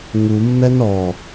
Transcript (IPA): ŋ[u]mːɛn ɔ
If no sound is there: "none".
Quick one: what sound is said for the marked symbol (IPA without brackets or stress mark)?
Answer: u